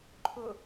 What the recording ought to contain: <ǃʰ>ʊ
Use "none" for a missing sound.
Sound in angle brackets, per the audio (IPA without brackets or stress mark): ǃʰ